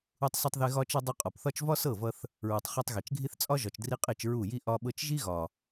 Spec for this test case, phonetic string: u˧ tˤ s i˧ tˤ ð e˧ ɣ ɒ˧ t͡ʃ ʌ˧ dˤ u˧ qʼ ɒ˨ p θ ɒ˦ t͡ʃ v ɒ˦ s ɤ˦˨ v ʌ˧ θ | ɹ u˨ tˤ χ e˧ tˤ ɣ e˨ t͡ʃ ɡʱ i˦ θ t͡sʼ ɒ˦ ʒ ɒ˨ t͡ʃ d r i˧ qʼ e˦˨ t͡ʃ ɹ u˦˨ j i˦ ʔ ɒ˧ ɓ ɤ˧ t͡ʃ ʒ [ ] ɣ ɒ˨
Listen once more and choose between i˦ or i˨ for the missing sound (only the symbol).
i˦